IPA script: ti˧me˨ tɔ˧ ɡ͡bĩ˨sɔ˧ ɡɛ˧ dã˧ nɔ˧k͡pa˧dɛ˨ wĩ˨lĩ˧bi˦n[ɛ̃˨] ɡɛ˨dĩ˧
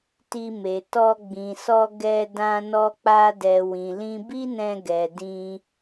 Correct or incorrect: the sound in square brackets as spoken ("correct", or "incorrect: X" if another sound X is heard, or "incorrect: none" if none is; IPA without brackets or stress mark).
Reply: incorrect: ɛ̃˧